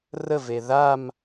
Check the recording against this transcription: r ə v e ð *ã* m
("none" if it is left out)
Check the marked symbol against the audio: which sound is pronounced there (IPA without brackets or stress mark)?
a